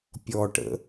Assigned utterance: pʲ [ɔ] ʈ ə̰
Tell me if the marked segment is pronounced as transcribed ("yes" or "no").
yes